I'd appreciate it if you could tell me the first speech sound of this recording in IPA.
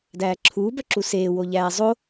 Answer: d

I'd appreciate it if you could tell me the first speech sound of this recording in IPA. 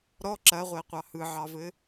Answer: ɾ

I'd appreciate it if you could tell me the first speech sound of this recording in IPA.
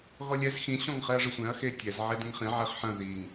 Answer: ɣ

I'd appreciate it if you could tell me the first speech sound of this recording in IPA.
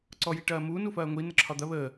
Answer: ǀ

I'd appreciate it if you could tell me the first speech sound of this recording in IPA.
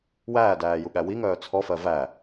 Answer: w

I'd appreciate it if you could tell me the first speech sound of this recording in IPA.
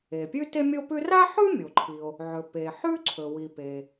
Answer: e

